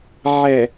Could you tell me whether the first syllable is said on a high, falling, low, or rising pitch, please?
low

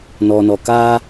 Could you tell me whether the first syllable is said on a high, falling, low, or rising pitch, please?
low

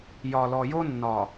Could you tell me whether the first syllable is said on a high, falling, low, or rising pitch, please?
low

